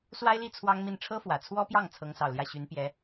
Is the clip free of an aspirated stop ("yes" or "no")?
no